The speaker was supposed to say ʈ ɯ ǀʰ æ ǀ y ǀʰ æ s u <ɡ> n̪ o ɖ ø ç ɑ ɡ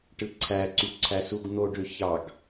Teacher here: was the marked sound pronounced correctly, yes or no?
yes